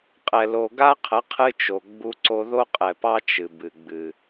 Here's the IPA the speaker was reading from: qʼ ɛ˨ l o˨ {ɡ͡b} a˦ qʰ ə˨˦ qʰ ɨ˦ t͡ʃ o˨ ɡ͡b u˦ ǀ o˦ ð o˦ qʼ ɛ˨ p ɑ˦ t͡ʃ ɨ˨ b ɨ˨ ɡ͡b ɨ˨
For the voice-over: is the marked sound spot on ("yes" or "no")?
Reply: no